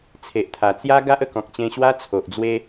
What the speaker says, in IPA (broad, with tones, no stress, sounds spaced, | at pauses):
t͡sʰ e˨ ʔ t̪ʰ a˨˩ t͡s j a˦ ɡ a˦ ʔ ə˧ k ɔ̃˨ k̚ t͡ɕ ẽ˧ ɕ w a˦ t͡sʰ o˨ ʔ d͡z w e˦